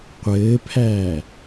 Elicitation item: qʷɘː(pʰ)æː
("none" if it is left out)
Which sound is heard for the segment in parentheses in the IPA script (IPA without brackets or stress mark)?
pʰ